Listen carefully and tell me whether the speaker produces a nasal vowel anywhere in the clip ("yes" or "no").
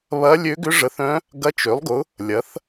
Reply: yes